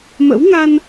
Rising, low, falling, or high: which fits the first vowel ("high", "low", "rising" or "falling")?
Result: rising